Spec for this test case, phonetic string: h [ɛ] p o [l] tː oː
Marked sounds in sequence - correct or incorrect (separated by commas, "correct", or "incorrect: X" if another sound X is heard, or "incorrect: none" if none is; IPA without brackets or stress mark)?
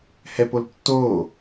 correct, correct